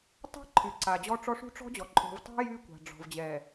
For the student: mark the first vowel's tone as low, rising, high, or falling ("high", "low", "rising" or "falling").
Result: high